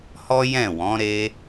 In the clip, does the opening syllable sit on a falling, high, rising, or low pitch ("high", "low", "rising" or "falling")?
high